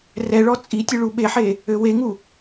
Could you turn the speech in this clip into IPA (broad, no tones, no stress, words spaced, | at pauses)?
rɛɭɔ t͡sʼitʲɨ ɭuɓeħe | øweŋu